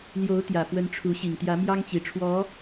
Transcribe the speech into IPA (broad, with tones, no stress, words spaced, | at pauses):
ljo˧˥ʊ̯ t̪jä˨˩fwə˧˥n ʈ͡ʂʰu˧˥ ɕi˨˩ŋt̪jä˧˥ mjɑ˥ŋt͡ɕi˨˩ʈ͡ʂʰwɔ˧˥